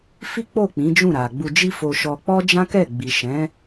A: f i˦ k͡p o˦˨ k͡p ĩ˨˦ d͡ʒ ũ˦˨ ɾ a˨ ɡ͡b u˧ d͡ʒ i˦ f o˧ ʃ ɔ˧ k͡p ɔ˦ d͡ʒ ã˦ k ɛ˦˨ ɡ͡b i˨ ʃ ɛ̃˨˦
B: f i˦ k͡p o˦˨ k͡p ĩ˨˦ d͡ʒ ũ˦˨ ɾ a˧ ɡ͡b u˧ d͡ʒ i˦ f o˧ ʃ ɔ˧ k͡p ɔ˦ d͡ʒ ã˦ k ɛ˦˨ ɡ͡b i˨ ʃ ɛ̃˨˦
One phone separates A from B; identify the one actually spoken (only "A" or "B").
A